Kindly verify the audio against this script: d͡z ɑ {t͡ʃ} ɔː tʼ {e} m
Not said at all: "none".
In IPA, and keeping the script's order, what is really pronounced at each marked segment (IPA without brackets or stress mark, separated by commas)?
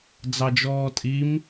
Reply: d͡ʒ, i